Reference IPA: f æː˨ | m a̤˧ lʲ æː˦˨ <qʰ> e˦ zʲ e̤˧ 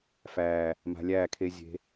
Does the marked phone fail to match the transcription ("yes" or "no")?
yes